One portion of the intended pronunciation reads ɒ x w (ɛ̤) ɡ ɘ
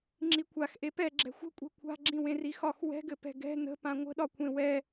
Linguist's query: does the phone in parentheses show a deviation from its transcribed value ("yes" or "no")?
no